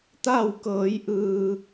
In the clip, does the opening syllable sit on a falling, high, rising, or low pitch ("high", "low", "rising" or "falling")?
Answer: falling